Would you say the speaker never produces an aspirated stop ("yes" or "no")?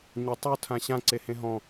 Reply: no